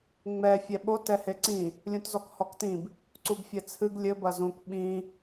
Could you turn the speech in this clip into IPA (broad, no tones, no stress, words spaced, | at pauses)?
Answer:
ŋ͡mɛ fʲɛɓot ɛheǀĩ | lʲũtzɔkhɔktĩb | ǀubfʲɛt͡sʰɨɡ lʲɘ bɐzũkʷ ɓĩ